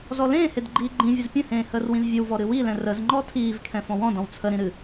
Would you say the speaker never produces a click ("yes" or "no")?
no